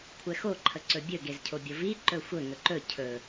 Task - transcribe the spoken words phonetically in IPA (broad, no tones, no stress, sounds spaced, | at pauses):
kʷʰ ɛ x o ǃʰ ə ǀ ɵ bʲ ɵ ɡ e z cʰ o bʲ o v i ǃ ɵ xʷ ə ŋ ɵ ǃ ɵ cʰ ɵ